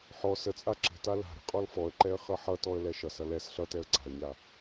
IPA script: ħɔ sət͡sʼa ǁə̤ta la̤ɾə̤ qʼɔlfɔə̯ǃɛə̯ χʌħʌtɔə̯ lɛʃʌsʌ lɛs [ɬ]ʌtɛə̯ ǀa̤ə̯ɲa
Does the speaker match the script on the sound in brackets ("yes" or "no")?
yes